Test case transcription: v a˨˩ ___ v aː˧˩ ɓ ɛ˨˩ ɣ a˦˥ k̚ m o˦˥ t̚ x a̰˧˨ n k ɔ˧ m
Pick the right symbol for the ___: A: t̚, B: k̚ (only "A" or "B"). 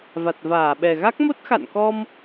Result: A